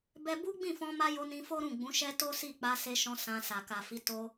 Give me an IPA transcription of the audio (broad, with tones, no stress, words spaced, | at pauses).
bɛ˦ bu˦ɡ͡bĩ˦˨fɔ̃˧ma˧ jo˧nĩ˧ fo˦ɾũ˦˨ ɡ͡bũ˨˦ʃɛ˦to˦si˦˨ k͡pa˧se˧ʃɔ̃˧ sã˧sa˨ ka˨fi˨˦ to˧